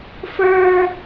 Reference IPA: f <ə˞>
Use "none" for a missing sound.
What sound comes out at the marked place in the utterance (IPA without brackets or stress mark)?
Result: ə˞